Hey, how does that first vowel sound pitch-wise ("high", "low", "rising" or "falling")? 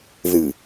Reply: low